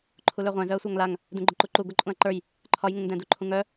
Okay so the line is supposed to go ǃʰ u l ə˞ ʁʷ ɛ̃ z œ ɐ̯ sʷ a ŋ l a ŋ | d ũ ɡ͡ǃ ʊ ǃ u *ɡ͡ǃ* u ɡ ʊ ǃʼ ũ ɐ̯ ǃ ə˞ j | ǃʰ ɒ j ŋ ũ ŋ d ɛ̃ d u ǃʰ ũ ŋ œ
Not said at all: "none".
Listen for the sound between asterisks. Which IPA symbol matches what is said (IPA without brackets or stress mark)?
ǃ